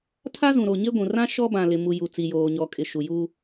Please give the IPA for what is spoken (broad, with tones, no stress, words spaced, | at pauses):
tʰa˦zũ˨ɾo˨ɲe˦ ɡʷũ˨rã˦ ʃɔ˦bã˨lɪ˨ mu˨ju˨ t͡si˨joː˨ɲɔ˨ kʼɪ˨ʃu˨juː˦